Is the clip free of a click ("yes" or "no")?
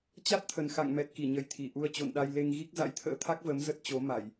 yes